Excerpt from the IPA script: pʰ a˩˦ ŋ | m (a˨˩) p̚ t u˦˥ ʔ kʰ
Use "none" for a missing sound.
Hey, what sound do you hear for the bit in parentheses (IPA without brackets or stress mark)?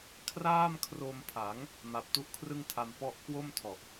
a˨˩